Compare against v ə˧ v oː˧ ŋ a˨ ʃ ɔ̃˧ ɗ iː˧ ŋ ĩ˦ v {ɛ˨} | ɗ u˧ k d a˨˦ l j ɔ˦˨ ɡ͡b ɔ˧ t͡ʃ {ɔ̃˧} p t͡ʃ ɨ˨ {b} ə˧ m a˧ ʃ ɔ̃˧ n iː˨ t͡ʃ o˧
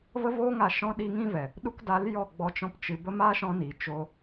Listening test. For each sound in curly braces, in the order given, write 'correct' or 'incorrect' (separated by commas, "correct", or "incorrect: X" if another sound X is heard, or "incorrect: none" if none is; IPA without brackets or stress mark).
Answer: correct, correct, correct